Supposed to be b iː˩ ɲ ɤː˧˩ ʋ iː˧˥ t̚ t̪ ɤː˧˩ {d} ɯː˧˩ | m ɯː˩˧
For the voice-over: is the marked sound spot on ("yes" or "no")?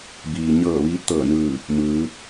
no